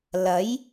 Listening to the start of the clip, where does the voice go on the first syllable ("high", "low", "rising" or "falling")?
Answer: rising